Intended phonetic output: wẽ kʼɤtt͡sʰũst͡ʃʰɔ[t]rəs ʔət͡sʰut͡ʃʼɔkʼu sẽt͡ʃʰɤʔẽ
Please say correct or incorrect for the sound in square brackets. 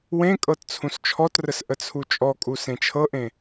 correct